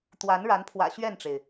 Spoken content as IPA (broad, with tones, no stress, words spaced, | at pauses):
t̪wa˨˦nɻa˨˦npʰwä̰˨˩ ɕɥɛ˥˨nʈ͡ʂe˩ɪ̯